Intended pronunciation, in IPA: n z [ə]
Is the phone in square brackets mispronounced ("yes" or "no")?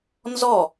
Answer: yes